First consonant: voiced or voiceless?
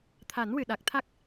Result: voiceless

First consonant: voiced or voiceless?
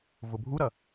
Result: voiced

